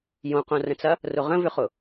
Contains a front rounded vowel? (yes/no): yes